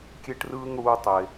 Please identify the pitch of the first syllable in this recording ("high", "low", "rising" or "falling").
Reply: high